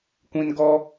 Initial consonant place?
velar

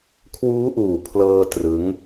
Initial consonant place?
velar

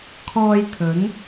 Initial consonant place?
velar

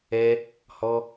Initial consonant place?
glottal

